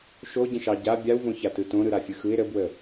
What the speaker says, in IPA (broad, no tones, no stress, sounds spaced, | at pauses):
ʃ o ɟ ə̃ ʃ ɑ ɟ a bʲ a w v õ ç a t ɯ t õ ɾ ɯ ɾ a fʲ ɯ x ɯ ɪ̯ ɾ ə b w ə